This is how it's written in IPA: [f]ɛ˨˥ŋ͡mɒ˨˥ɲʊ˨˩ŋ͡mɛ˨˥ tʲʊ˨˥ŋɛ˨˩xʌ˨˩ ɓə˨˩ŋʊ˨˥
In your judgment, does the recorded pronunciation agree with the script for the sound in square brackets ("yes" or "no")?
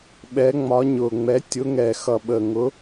no